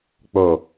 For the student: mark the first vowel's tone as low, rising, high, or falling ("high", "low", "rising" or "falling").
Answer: low